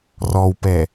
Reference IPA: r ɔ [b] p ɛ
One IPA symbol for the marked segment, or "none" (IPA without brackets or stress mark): w